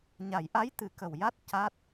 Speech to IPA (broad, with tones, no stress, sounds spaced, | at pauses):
ɲ a˨˩˨ j ʔ a˧˥ j t̪ ɨ˨˩˦ k ə˨˩ w j a˦˥ t̚ c a˦˥ t̚